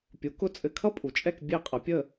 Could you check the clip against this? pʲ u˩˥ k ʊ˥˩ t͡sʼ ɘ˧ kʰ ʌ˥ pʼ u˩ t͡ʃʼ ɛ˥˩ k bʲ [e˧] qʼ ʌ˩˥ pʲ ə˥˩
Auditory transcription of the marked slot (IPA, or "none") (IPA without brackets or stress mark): e˥˩